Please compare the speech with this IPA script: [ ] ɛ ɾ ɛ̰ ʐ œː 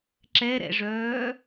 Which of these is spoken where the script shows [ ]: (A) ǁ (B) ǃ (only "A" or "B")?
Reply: A